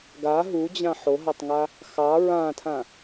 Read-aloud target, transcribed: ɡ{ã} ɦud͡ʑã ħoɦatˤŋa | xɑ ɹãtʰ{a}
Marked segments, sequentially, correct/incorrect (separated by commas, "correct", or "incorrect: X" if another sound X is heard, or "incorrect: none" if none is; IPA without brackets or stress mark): incorrect: a, incorrect: ã